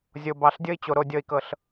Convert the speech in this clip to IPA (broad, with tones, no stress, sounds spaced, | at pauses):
zʲ o˨ b ɑ˨ ɬ dʲ ɤ˦ i̯ t͡ɕ o˨ ɾ o˦ dʲ ɤ˦ i̯ k ɤ˦ ɬ